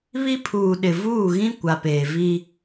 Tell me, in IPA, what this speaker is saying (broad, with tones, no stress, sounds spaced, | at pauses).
β i˦ pʰ uː˨ ɗ ɪ˨ v uː˦˨ ɣ ĩ˦ kʷ a˨ p eː˨ v i˦